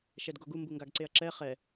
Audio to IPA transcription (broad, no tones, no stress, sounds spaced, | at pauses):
ʃ ɛ d ɡ o ɡ u m b u ŋ ɡ a ɡ ǀ e ɐ̯ ǁ ɛ χ ɛ